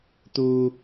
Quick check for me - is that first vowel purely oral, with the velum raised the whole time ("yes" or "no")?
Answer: yes